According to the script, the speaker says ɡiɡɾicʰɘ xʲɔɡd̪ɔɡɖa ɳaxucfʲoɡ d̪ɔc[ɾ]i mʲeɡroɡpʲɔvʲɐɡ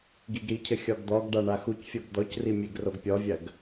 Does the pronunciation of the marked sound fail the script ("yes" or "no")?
yes